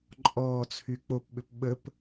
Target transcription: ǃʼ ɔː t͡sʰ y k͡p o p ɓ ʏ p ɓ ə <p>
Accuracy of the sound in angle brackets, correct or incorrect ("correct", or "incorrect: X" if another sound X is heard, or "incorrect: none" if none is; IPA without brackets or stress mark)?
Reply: correct